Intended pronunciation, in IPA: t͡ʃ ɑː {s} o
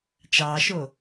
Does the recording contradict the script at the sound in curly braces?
yes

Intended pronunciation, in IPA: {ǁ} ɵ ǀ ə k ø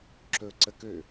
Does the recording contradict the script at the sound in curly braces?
no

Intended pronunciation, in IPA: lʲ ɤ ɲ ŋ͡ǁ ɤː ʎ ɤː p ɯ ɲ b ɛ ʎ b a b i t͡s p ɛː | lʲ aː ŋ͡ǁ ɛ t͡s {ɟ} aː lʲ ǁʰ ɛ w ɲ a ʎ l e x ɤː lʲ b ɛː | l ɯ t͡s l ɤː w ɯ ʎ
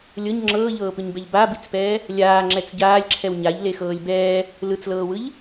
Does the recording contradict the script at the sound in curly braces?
no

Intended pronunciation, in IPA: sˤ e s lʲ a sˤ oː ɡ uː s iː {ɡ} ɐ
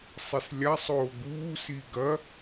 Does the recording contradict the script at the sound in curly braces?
no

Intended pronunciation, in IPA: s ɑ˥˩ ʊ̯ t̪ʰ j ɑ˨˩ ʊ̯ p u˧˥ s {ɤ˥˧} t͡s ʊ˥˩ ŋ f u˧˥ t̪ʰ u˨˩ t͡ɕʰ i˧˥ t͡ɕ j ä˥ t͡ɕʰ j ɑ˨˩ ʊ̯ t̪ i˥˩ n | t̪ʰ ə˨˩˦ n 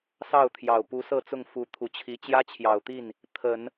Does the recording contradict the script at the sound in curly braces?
no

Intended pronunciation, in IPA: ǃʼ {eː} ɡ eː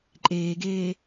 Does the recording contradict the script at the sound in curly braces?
no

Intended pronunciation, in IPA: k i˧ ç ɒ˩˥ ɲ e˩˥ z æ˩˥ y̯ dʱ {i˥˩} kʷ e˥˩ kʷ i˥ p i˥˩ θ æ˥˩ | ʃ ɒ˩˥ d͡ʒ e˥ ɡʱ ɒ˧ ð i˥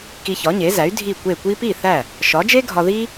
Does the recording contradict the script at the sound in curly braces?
no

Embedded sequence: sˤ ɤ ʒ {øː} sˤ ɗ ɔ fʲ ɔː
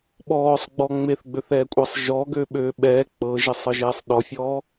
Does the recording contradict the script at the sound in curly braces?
yes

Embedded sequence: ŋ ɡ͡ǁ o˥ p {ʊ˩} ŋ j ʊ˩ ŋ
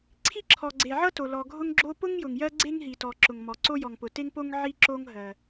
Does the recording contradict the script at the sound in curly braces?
yes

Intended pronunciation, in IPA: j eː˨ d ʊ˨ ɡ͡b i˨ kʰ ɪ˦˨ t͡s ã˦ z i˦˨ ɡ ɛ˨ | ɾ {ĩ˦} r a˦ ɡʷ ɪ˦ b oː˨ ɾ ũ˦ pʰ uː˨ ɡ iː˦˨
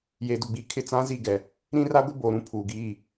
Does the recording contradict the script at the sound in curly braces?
no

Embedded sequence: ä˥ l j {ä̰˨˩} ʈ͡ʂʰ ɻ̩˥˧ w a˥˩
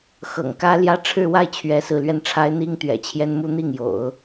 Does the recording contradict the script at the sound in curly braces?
yes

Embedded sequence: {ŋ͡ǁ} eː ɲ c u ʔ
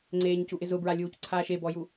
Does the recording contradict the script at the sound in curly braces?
yes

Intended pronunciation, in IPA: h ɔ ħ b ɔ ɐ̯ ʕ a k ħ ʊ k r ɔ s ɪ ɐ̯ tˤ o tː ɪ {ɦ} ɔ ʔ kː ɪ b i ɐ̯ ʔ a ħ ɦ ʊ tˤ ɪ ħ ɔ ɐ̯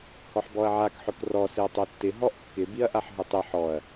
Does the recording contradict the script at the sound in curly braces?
no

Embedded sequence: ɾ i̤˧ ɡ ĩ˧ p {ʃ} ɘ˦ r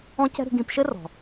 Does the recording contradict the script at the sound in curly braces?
no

